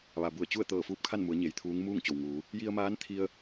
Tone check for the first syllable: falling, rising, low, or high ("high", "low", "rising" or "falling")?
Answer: low